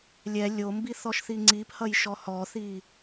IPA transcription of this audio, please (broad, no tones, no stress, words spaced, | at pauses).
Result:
lʲɛ lʲombiθɔʃ θiŋ͡ǀiphʌjʃɔ hɔθi